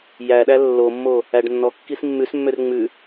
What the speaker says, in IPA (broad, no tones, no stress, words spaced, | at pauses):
jæɗæ lːomːo | æɖnːɔkːis mːʉsmːør ŋ͡mʉ